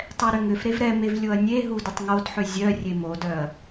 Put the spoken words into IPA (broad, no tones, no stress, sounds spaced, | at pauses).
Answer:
tˤ ɛ ɾ ʏ ŋ ʏ f ɾ e v ɾ ɛ m e v lʲ o ɐ̯ nʲ e ɦ u d ʏ tˤ ŋ o d ħ ʏ zʲ œ rʲ e m o d œ ɐ̯